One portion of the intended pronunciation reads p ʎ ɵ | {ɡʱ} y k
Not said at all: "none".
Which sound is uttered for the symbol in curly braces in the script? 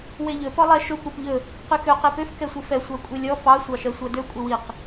q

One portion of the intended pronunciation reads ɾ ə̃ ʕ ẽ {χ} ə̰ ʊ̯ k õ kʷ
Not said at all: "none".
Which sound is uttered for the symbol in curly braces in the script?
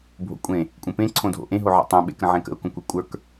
k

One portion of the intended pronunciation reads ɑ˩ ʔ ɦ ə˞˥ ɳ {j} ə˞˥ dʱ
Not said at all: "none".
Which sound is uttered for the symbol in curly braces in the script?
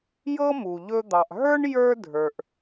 j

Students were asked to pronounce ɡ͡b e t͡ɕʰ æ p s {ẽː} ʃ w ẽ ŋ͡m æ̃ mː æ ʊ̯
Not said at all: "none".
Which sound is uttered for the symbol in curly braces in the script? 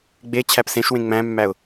ẽ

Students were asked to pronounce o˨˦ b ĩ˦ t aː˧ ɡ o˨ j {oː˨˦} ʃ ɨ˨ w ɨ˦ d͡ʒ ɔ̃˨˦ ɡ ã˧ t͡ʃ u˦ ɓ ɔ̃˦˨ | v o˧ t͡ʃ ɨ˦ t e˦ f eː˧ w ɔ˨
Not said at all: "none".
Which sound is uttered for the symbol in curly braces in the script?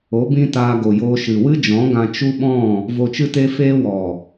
oː˧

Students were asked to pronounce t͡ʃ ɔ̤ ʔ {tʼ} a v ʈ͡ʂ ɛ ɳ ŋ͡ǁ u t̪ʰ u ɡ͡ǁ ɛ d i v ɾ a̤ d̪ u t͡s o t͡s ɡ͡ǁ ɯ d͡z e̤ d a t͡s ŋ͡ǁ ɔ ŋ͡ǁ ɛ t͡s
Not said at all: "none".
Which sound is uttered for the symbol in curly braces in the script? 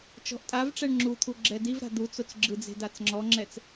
tʼ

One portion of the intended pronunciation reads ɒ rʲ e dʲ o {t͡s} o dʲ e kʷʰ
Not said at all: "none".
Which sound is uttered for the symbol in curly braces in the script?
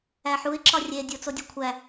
t͡s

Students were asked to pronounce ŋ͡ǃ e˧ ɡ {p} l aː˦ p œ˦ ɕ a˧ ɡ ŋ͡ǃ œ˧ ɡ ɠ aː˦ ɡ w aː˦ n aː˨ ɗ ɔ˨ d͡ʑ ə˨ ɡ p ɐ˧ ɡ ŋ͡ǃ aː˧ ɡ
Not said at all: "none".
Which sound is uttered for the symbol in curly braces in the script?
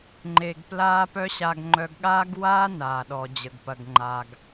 p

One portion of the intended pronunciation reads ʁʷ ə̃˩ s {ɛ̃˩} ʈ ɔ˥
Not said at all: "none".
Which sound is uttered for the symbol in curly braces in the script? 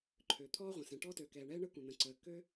ɛ̃˩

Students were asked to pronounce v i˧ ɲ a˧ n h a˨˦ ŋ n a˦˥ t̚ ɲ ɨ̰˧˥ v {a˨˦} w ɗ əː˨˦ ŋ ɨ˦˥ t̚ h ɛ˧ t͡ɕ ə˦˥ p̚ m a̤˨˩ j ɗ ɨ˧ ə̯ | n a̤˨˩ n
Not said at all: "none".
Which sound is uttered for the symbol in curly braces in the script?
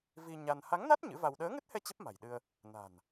a˧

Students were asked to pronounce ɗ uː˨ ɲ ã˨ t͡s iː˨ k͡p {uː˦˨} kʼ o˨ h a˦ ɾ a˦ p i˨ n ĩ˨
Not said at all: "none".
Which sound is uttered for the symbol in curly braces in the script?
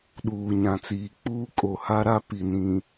uː˦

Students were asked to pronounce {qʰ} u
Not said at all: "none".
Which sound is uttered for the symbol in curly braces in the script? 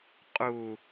qʼ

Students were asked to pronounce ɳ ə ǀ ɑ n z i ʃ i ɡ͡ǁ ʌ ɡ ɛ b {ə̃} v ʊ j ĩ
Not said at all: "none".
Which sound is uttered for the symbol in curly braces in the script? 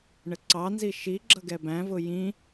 æ̃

